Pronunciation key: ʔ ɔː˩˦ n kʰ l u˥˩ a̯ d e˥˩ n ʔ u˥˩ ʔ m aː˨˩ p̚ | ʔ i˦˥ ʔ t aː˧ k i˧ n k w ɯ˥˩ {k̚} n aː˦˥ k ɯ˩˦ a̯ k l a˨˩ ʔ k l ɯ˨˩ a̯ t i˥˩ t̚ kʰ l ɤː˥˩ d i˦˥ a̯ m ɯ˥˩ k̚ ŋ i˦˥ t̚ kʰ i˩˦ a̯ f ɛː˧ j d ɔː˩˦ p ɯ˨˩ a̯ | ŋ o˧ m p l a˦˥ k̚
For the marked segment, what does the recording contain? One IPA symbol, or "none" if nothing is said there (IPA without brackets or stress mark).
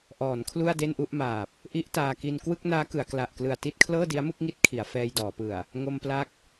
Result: k̚